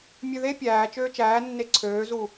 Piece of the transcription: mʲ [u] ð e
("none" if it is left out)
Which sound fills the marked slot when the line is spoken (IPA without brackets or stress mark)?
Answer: ø